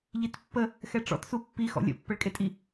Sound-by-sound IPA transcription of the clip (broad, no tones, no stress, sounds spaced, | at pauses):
ʎ i t pː ə | x ɛ ʈ͡ʂ ɔ̰ t s u pː i x ɔ̰ lʲ ə̰ pː ə ɭ kʼ e tʼ i